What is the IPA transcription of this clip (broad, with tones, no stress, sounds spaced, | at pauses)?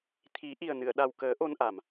t̪ʰ i˨˩˦ ʔ i˨˩ ə̯ n ɨ˨˩˨ ə̯ ɗ a˨˩ w k əː˨˩˦ ʔ o˧ n ʔ a˨˩˨ m